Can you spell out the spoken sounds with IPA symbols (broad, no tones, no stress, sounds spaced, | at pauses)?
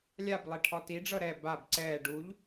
lʲ a b lˠ e ʈʰ ɔ t i ɖ͡ʐ ɤ ɾ ɛ b a b ǀ ɛː ɖ u ʎ